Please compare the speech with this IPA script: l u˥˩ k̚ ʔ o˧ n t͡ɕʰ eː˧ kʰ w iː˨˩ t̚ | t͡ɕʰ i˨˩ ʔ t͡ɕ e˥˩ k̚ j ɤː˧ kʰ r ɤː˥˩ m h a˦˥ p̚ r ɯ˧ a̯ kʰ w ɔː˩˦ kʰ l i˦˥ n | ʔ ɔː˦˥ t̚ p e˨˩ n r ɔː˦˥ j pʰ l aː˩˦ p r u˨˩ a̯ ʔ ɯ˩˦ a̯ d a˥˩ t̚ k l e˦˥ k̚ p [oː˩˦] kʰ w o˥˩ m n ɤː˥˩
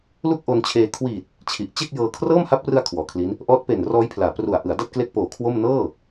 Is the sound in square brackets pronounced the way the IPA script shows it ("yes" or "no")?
yes